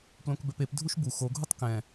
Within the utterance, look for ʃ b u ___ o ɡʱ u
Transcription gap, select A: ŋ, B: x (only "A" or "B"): B